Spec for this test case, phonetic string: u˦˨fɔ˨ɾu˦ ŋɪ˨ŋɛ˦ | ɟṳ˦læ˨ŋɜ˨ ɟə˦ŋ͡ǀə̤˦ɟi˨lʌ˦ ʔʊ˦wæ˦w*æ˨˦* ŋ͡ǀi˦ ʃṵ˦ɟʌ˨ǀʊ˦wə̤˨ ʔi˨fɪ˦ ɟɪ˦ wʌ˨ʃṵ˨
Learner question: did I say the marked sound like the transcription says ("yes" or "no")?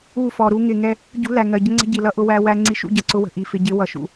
no